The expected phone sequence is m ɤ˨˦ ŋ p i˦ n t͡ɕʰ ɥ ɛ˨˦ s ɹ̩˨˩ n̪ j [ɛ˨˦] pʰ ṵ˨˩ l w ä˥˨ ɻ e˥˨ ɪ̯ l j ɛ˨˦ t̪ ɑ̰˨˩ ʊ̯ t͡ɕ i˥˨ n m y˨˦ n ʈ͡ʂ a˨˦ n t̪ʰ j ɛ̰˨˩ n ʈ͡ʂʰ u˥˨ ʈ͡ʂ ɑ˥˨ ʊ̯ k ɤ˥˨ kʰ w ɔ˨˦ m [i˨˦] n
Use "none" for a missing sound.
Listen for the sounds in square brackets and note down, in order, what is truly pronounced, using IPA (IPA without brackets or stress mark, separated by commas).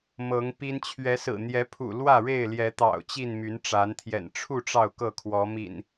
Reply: ɛ˨˦, ḭ˨˩